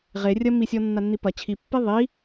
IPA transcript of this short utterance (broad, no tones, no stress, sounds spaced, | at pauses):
ʁ e rʲ ɐ m i sʲ ɔ nː a nː i p ɐ t͡ɕʰ i pː e ðˤ i